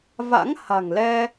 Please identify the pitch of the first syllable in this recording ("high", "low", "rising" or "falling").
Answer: rising